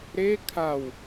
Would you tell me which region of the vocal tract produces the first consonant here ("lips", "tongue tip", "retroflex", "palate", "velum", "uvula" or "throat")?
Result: tongue tip